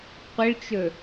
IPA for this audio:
qʷ ə ɭ t͡ʃ ɵ

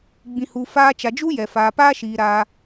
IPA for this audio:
ɡ͡b ĩ˨ h u˨ f aː˧ t͡ʃ a˨ d͡ʒ u˦ j ɛ˨ f aː˨ p aː˧ ʃ iː˨ ɾ aː˧

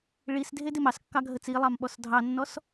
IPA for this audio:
ɭ i s dʱ e d ɪ m ɑ s kː ɑ ɡʱ ə t͡s i lˠ ɑ m ɓ ɔ s dʱ ɑ nː ɔ s

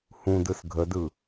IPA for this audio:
h ũ d ɯ s ɡʱ ə d ɯ

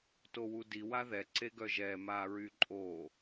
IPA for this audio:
t o w u d i w a ð ɛ ǀ e ɡ œ ʒ ɛ m a ɹ y ǃʼ o

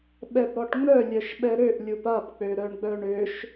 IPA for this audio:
ɓ ɛ b ɽ ɔ ʈ ŋ͡m œ lʲ œ ʃ ɓ ɛ ɾ ø ʔ lʲ u p a p k͡p ø ɾ œ ɳ ɡ͡b œ ɳ ø ʃ

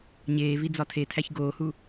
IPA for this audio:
ɲ eː v i d͡z ɒ tʰ e tʰ æ ç ɡ oː h u

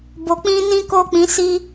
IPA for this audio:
b o˨ k͡p ĩ˧ n ĩ˦ k o˦˨ k͡p ĩ˨˦ s i˦

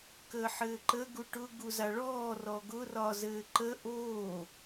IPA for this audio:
k əː ħ ɘː ǃ ə ɡ u ʈ ʊ ɡ u z a ɭ ɔː r ɔ ɡ ʊ r ɒ z ɘː ǃ ə ʔ oː

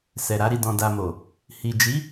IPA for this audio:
s ɛ˨ ɾ a˧ ɾ i˨ d ɔ̃˨ d a˨ m o˨ | h i˨ d͡ʒ i˨˦

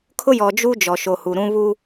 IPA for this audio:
kʰ ʊ˦ j ɔ˨ d͡ʒ u˦ d͡ʒ ɔ˨ ʃ o˨ h u˨ ɾ ũ˦ β u˦

